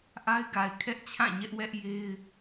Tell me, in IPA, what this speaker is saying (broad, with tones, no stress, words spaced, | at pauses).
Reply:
ʔa˦ɪ̯ɡa˨ɪ̯ kʰɛ˦ʔt͡ɕʰã˦˨ɲɛ˦ʔ wɛ˦ʔje˦ɪ̯